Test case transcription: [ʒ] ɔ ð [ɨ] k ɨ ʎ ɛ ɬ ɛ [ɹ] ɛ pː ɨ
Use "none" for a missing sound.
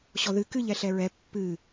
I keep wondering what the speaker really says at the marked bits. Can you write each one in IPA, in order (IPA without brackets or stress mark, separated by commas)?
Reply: ɕ, ɨ, ɹ